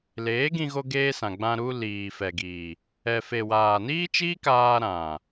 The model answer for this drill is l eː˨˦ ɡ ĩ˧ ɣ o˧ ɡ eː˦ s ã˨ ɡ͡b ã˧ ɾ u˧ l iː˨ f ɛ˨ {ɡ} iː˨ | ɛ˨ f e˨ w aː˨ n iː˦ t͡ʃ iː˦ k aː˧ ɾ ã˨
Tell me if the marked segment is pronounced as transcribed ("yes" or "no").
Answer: yes